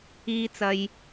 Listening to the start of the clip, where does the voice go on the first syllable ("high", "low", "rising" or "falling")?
high